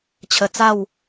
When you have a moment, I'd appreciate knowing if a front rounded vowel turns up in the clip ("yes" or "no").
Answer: no